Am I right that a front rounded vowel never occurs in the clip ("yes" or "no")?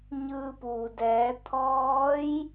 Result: yes